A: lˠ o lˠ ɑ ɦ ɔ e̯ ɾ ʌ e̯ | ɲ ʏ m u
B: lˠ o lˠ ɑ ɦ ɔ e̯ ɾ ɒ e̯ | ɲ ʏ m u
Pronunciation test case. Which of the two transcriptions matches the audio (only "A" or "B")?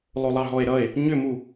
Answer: A